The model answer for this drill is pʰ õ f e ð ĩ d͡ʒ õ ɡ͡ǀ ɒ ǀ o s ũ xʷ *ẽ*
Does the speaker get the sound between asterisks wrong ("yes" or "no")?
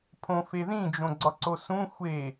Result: yes